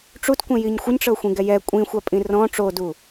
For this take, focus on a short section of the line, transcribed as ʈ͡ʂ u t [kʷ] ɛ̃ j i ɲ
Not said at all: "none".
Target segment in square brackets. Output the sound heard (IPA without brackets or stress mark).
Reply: kʷ